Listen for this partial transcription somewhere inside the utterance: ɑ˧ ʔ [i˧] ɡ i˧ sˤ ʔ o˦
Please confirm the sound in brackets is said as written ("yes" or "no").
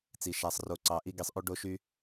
no